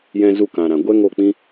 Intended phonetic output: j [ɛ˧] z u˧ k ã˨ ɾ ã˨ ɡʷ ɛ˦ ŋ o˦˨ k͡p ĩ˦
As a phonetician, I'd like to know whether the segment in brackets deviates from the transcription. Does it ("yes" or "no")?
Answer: yes